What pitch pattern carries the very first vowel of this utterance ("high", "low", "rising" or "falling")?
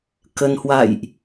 low